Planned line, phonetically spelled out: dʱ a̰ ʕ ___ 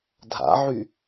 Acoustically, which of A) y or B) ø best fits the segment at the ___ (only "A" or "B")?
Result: A